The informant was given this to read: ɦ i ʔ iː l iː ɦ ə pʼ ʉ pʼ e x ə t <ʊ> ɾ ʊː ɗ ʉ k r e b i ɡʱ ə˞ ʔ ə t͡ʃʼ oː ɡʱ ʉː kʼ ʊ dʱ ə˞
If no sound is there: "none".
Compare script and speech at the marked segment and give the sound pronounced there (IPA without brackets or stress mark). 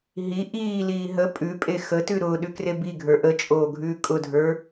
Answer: ʉ